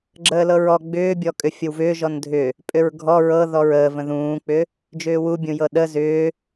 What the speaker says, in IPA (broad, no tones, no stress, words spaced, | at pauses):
ɡ͡ǁəːlɤɹɔ ɡ͡bʏːbʲɔkʼʏ fʲəwvʏː ʒɔndʱʏ | pʼʏɹɡʱɔ ɹɤðɔɹ əːvə̃ ðũːk͡pʏ | d͡ʒʏːwubʲũjɤ ɗə zʏː